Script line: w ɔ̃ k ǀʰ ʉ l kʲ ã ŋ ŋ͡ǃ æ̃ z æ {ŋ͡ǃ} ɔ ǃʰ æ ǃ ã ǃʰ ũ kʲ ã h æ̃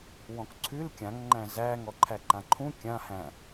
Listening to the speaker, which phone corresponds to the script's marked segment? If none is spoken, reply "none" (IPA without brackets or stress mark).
ŋ